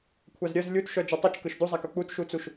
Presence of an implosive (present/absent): absent